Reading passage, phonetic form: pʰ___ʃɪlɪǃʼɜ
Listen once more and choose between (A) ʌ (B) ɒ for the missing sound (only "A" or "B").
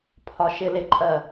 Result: B